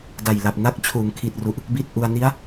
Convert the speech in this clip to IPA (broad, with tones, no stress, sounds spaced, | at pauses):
d a˨˩ j l a˨˩ p̚ n a˥˩ k̚ t͡ɕʰ uː˩˦ ŋ kʰ i˨˩ t̚ r u˨˩ ʔ | b i˥˩ t̚ ʔ u˧ a̯ n i˦˥ a̯